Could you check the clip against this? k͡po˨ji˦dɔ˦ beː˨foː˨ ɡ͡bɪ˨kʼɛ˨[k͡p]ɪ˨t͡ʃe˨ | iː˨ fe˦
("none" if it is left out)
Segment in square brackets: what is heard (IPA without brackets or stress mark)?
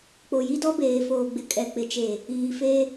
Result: k͡p